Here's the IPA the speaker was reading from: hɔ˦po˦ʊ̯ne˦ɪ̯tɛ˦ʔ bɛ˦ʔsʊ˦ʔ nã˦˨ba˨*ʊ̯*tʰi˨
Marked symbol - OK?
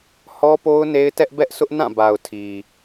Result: yes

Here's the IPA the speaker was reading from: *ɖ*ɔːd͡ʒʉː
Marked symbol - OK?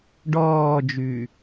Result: yes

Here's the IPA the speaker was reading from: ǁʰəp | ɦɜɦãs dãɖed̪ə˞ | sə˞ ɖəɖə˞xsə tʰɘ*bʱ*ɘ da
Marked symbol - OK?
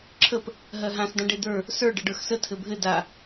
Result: yes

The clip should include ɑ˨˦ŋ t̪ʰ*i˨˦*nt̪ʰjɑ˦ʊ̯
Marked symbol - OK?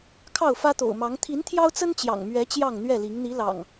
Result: yes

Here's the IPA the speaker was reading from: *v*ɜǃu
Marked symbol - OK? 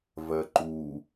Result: yes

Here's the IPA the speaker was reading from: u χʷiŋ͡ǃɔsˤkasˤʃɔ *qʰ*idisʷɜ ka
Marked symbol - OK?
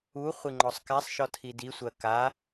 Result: no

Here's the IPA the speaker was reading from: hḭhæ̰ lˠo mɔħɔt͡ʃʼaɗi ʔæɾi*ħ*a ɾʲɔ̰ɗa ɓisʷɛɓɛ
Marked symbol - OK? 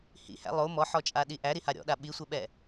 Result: no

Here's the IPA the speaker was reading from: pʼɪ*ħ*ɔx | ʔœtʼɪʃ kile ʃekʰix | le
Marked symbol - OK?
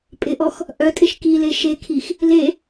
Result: no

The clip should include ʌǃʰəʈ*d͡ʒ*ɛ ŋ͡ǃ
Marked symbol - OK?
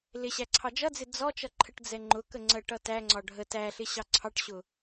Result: no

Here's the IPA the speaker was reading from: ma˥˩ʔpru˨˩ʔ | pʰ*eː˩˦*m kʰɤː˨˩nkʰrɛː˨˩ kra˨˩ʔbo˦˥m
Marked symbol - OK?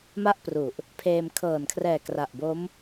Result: no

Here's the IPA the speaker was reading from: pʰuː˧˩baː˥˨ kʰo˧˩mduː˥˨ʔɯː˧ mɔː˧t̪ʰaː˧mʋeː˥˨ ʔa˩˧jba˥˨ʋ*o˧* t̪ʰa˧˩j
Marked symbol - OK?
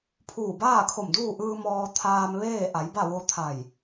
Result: yes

